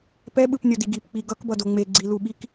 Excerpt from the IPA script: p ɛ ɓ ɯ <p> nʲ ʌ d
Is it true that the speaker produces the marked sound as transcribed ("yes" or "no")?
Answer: yes